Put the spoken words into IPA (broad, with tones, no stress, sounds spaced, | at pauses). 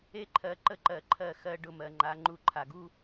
e˦ ǃʰ ɜ˨˦ ǃ ə˦ ǃ ɜ˧ ǃʰ ɜ˦˨ x ɜ˧ ɖ ʊ˧ m ɜ˨ ŋ͡ǃ a˨˦ ŋ͡ǃ u˧ ǃʰ a˨ ɡ u˦